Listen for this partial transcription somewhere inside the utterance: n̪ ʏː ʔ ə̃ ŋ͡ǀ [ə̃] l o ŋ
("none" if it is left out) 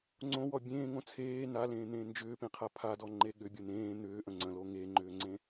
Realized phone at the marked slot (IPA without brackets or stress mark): ə̃